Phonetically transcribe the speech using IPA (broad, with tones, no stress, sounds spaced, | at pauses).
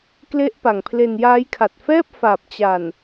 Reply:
k l e˦˥ ʔ p a˨˩ ŋ pʰ l e˧ n j aː˦˥ j kʰ a˨˩ t̚ f ɛː˥˩ p̚ f aː˨˩ p̚ t͡ɕ a˨˩ n